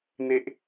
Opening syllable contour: high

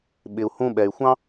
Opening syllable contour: low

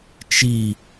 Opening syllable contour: falling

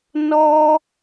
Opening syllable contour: high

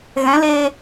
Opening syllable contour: rising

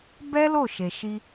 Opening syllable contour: high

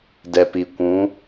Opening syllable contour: low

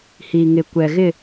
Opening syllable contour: low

